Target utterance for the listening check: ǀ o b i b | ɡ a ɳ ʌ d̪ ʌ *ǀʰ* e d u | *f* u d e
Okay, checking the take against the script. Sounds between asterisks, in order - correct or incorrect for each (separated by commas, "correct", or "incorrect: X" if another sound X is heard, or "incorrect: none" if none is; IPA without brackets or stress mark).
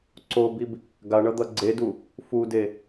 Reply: incorrect: ɡ͡ǀ, correct